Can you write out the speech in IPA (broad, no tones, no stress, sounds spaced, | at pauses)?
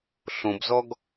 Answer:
ɬ õ b z ɔ ɡ